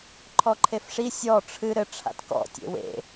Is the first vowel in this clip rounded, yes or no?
yes